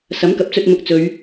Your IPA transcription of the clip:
s ɐ˨˥ m k ɐ˨˥ p̚ t͡s ɵ˧ t̚ m ʊ˨˥ k̚ t͡s ɵ˨˧ ɥ

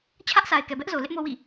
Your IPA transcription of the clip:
t͡ɕʰ ä˦ ʔ sʰ a˨ ɪ̯ k ɛ˨ b ɛ˦ ʔ z o˨ l ɪ˦ ʔ m o˦ w ḭ˦˨

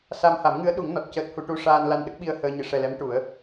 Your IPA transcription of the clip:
s a˧ m h a˨˩˦ m ŋ ɨ˧˥ ə̯ ɗ u˨˩˦ ŋ n ɔ˨˩ t̚ c əː˦˥ t̚ h u˧ ʈ u˧ ʂ aː˧ n l a˧ n ɗ ə˦˥ k̚ ɓ i˧ ə̯ h əː˧ ɲ ɨ˨˩˨ ʂ ɛ˨˩ l ɛ˧˥ m ʈ u˨˩˦ ə̯

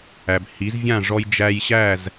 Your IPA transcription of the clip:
æ˩ b h i˩˥ z vʲ ã˥˩ ʐ ɔ˧ j d͡ʒ æ˧ j ɕ æ˥˩ z

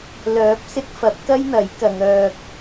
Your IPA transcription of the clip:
l œː˨˥ p̚ s ɪ˧ k̚ f ɐ˨˥ p̚ k ɐ˥ j n̪ ɐ˨˥ j k ɐ˨˧ ŋ œː˧ k̚

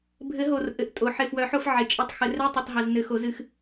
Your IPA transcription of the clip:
bʱ ɘ˨˩˦ ɦ o˨˩ r ʔ ɘ˨˩ ʔ tʼ o˨˩ ħ ɪ˨˩ f w œ˨˩˦ ħ o˧ f ʕ ɪ˨˩ t͡ʃʼ ɨ˨˩˦ tˤ x ɘ˨˩ r ɛ˧˥˧ tˤ ɨ˨˩ tˤ ɦ ɘ˨˩ z n ɘ˨˩˦ x o˨˩˦ z ɨ˨˩˦ x

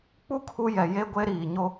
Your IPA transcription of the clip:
k͡p u˦ kʰ u˦ j ɛ˨ j e˦ ɡʷ e˦ ɾ iː˨ ɲ o˦

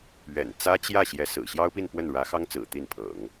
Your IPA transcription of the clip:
ɥ ɛ̰˨˩ n t͡s ä˥ t͡ɕ j ä˥˩ ɕ j ɛ˧˥ s ɹ̩˨˩ ɕ j ɑ˥ ʊ̯ p i˥˧ n p w ə˥˩ n ɻ ä˧˥ x ɑ˥ ŋ t͡s ɹ̩˨˩ t̪ i˥˩ n pʰ ɤ̰˨˩˦ ŋ

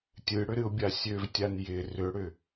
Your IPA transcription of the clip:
tʲ ɨ ɽ ʏ ɾ ɨ ʊ̯ bʲ a sʲ ø v tʲ a n j ɪ r ʏ ɽ ʏ

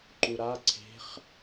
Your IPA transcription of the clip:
ǃ u ɾ a ǀʰ e̤ χ

